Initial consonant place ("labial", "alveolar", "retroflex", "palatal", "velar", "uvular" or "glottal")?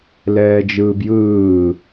alveolar